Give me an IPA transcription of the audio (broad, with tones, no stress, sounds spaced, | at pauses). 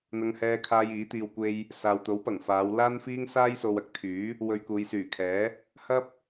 n̪ ɐ˧ ŋ h ɛː˧ kʰ aː˧ j iː˨˥ t̪ iː˧ w kʷ e˧ j | s aː˨ w t̪ o˨˥ w p ɐ˨˩ ŋ f aː˨˧ w l aː˥ n f iː˥ ŋ s aː˥ j s o˧ w ɐ˥ k̚ t̪ʰ yː˨˥ | w ɵ˧ ɥ k uː˨˧ j s yː˨˩ kʰ ɛː˨˥ | h ɐ˥ p̚